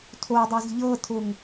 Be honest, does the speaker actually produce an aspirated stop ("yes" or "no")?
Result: yes